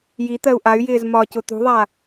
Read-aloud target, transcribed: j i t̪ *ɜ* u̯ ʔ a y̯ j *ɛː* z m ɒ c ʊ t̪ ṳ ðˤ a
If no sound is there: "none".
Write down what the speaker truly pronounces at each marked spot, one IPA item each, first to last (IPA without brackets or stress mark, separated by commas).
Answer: ɜ, ɪː